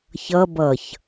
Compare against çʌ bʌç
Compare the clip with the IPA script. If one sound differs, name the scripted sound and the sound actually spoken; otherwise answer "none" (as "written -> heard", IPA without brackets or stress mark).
none